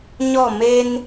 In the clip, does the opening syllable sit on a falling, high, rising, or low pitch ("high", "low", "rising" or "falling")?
falling